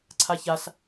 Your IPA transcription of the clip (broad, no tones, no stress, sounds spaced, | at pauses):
ǀʰ a ç a s